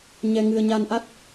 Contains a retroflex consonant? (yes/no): no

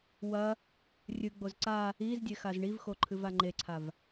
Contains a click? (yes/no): yes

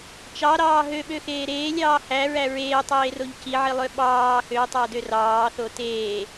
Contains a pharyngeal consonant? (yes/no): yes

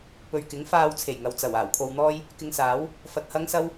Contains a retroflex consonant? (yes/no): no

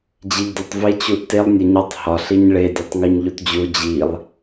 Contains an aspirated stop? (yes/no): no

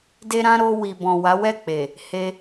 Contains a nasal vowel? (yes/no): yes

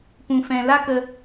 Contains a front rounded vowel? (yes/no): no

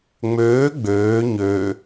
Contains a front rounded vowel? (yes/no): yes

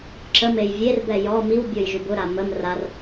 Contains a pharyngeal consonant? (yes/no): no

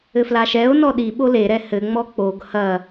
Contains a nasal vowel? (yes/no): no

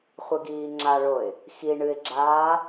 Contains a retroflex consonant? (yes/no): yes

